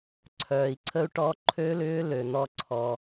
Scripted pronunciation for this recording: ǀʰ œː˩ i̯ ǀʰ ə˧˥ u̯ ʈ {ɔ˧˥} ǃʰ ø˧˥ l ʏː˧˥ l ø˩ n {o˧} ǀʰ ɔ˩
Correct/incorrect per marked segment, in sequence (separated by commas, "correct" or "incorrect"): correct, incorrect